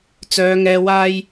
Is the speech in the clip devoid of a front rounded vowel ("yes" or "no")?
no